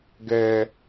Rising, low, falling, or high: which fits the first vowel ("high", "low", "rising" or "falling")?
high